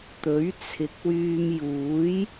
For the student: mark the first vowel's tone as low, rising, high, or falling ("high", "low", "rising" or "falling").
rising